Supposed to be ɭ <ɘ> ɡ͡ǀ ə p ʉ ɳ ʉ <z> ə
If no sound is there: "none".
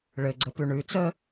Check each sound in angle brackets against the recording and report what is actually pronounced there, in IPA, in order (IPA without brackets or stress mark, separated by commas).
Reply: ɘ, t͡s